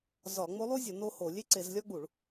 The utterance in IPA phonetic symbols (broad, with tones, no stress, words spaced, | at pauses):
zɒ˧˩˧ ŋ͡mo˧˥lˠu˥zʲɒ˧˩˧ no˥ho˧˩˧ lʲe˥ǀe˧˩˧zlʲɒ˥ ɡ͡bu˧˩˧ɭ